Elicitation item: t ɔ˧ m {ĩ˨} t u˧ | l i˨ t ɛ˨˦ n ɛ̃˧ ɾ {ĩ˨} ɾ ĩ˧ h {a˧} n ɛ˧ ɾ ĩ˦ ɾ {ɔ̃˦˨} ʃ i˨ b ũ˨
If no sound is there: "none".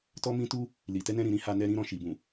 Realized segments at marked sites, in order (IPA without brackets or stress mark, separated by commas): ĩ˧, ĩ˨, a˧, ɔ̃˦˨